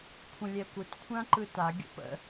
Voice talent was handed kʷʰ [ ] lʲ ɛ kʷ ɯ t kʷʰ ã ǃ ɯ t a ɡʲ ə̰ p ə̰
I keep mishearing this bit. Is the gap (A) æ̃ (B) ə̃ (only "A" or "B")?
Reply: B